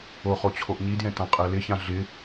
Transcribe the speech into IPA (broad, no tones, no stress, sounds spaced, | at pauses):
o χ o t͡ɕʰ o ʔ ɲ i d j ɛ̃ t ã qʼ ɛ l ɪ ç ã ɮ ɪ